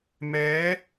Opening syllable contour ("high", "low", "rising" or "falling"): rising